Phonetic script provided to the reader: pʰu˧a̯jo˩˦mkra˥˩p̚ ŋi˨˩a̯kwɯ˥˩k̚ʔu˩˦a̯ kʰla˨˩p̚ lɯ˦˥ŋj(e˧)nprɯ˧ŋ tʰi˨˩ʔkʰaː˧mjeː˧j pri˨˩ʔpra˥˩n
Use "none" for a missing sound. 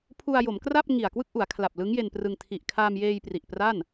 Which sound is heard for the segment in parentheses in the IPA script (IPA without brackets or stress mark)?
e˧